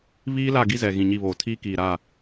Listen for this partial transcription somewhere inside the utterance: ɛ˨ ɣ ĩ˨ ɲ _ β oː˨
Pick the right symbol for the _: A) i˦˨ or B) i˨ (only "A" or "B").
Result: A